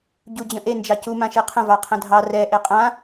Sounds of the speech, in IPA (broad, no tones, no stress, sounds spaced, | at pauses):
ɟ u d͡ʑ ə̃ ʔ e n d͡ʒ ɑ c u m ã ʃ e qʰ ə̃ v ɑ qʰ ə̃ dʱ ɑ r ɛ ʔ e qʼ ã